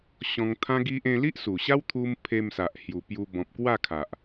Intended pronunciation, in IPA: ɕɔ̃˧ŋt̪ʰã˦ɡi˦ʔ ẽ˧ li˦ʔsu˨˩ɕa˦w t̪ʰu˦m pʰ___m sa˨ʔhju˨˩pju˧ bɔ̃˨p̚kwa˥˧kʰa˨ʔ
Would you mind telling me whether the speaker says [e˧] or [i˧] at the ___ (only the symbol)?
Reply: e˧